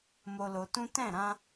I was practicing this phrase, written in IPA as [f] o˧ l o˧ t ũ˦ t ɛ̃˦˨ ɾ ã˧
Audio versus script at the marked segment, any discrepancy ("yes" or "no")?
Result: yes